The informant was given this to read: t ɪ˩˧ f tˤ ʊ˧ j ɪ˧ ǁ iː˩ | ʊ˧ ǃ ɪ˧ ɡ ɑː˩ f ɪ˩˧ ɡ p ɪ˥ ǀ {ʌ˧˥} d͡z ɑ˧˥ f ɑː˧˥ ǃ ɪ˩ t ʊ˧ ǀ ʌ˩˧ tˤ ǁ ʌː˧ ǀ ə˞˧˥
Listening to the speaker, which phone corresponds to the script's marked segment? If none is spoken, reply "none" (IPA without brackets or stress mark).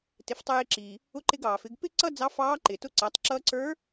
ʌ˥